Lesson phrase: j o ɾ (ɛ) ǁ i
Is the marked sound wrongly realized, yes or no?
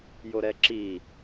no